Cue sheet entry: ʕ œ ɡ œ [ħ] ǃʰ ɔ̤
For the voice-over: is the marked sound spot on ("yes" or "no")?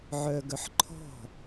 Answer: yes